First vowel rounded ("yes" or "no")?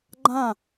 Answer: no